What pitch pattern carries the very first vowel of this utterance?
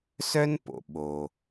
high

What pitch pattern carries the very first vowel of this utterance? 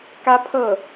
high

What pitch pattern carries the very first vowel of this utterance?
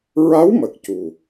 rising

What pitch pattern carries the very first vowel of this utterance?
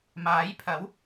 rising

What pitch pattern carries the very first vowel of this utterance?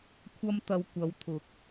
high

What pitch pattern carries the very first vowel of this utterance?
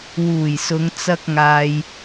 low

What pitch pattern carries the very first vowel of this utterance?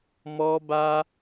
high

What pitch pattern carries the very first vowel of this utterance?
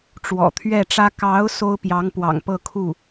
low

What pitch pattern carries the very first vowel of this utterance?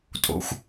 high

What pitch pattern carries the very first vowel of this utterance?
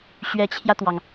rising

